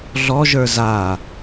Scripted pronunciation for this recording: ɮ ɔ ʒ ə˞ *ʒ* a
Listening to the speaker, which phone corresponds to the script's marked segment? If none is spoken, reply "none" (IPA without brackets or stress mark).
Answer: z